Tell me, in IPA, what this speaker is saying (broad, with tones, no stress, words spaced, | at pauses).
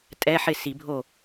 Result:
tʼɛ˧˥˧ħɪ˥˩ si˨˩˦bʱo˥˩